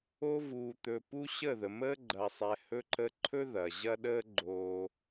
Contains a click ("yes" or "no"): yes